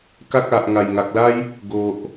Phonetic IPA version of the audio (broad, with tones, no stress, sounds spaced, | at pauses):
k a˦ k̚ a˨ ʔ ŋ a˨˩ j ŋ a˨ k̚ l a˦ j | ɡ o˨ ʔ